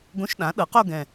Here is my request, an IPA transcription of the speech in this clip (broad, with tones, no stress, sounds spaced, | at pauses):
ɡ õ˧˥˧ ʃ ɗ ã˩˥ ɗ ɤ˩˥ q o˥˧ ɡ ɛ̃˨˩